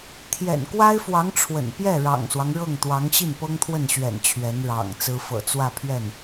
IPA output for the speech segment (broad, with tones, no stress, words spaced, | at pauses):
t̪ʰjɛ̰˨˩n kwa˥ɪ̯fwɑ˧˥ŋ ʈ͡ʂʰwə̰˨˩n pjɛ˥˩ ɻɑ̰˨˩ŋswɑ˦ŋ ɻɤ˥˩ŋt̪wɑ˧˥ŋ ɕi˥˩npɤ˥ŋt̪ʰwə˥˩nɕɥɛ̰˨˩n t͡ɕʰɥɛ˧˥nɻɑ̰˨˩ŋt͡sɹ̩˥ fɤ̰˨˩t͡swä˥˧pʰɥɛ˥˩n